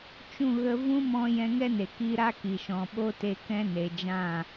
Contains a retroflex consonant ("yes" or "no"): no